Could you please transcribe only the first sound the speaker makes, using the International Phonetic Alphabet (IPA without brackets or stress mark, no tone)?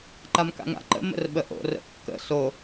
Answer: ǃ